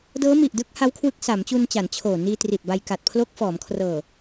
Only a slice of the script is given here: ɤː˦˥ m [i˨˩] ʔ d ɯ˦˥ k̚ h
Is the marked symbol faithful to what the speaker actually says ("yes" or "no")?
yes